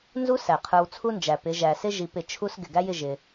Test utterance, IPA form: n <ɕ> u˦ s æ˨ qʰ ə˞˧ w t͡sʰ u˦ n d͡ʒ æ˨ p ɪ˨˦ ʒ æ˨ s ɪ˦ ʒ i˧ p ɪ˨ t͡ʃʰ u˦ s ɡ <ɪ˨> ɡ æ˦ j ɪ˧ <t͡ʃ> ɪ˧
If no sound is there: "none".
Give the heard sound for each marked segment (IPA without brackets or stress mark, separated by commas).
z, ɪ˨, ʒ